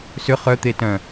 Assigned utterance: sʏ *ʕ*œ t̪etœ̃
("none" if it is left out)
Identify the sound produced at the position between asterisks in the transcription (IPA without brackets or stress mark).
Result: χ